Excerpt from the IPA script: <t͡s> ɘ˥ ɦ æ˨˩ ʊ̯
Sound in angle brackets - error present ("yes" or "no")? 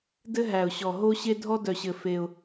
yes